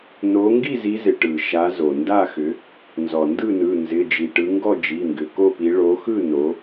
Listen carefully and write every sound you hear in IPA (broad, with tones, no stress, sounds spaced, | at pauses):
n o˨˦ ŋ ɡ i˥˨ z i˨˦ z ɪ˩ ʈ ɯ˩ ʃ a˨˦ z o˩ n d a˥˨ x ʏ˨˦ | n z ɔ˩ n d ɯ˥˨ n ɯ˩˧˩ n z ɪ˩˧˩ d͡ʒ i˩ ʈ ɯ˨˦ ŋ ɡ ɔ˥˨ d͡ʒ i˩˧˩ ŋ ɡ ʏ˩˧˩ k o˥˨ p i˨˦ ɭ o˨˦ x ɯ˥˨ n o˨˦